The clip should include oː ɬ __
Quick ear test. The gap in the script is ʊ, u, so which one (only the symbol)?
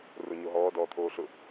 ʊ